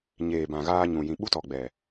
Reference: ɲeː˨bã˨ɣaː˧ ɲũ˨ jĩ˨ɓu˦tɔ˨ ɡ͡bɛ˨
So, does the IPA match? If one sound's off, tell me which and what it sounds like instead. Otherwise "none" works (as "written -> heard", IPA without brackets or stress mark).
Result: none